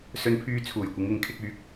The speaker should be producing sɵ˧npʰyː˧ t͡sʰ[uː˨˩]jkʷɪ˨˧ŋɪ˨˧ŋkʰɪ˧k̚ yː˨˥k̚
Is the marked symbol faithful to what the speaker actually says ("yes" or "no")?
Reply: yes